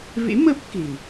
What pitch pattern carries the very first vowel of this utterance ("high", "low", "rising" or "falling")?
rising